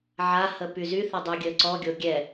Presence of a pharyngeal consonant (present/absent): present